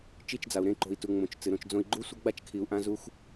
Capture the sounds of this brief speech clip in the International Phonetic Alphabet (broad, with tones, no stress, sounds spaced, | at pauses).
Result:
t͡ʃ i˦˨ t͡ʃ d͡z a˨ u̯ ɾ ẽ˦˨ ǃ o̤˨ i̯ t u˨ ŋ͡m õ˨ t͡ʃ t͡s ɨ˨ ɾ õ˧ t͡ʃ d͡z õ˦ i̯ ɡ͡ǃ u˦ sʷ ɐ˦ ɡ͡b a˦ t͡ʃ kʰ i˨ u̯ ʔ ã˦ z u˦ x